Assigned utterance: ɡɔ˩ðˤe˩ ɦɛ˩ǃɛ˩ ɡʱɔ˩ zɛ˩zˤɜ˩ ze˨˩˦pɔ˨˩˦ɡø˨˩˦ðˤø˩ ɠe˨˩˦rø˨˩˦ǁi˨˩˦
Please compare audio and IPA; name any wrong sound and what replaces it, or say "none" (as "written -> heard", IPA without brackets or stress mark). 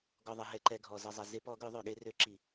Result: ɜ˩ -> ɛ˩